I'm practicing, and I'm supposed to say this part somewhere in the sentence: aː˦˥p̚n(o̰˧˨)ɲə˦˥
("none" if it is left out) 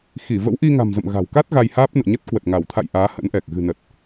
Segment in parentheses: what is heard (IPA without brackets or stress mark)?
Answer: o̰˧˨